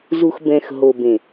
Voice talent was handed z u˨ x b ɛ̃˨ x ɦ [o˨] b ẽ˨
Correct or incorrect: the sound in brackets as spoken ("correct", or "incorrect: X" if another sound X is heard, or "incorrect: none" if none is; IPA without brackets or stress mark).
correct